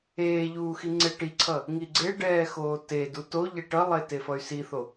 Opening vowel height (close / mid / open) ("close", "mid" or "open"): mid